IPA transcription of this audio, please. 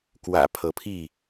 kwä̰˨˩ pʰɤ˨˦pʰi˥˨

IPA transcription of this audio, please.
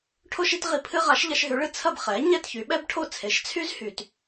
ʈʰo˥ʃ i˥tʁi˧pʰɨ˥ ʁa˩˥ʃʎɐ˧ʃɦy˩˥ɭɨ˩ t͡sʰɐ˥˩b χɛ˩˥ ɲɛ˥˩tçy˩˥ɓɛ˥b ʈʰo˥˩t͡sʰe˩˥ʃt͡sʰy˥z hy˧t

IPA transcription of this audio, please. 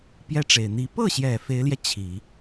pjɛ˥ʈ͡ʂe˨˩ɪ̯ n̪i˧˥ pɤ˥˩ɕjɛ˨˩ fe˧˥ɪ̯ljɛ˧ t͡ɕʰi˨˩˦

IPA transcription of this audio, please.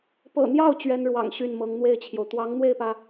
pɤ̰˨˩n̪jɑ˥˩ʊ̯ t͡ɕɥɛ˥nɻwɑ̰˨˩ŋ ɕy˥˩nmɤ˧˥ŋn̪we˥˩ɪ̯t͡ɕʰjo˩ʊ̯ t̪wɑ˧˥ŋn̪we˥˩ɪ̯pä˩

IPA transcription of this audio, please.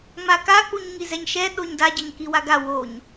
ŋ͡maka k͡puɲŋizɛɲʃɛ ɗoɲda ɟʌɲkiwaɡa woɲ

